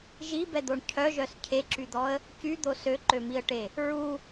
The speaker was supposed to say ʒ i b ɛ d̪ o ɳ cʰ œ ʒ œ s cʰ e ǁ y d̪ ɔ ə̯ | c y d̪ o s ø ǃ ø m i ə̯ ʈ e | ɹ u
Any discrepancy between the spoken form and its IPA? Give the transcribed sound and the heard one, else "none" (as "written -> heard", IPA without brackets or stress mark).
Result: none